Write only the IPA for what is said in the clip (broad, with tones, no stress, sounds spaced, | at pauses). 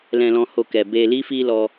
l ɛ̃˨ l ɔ̃˨ h o˨ k ɛ˨ b e˨ l i˧ f i˧ l ɔ˧